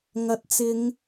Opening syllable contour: rising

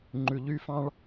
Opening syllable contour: low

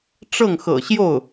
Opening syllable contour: falling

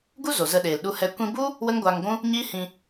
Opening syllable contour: high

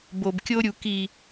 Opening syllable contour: low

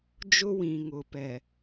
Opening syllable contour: high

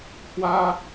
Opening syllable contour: high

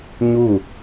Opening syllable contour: falling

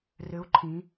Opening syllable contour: rising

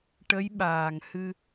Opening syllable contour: rising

